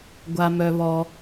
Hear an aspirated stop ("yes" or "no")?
no